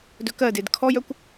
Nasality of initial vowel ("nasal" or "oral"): oral